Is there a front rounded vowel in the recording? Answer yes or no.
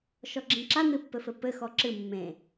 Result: no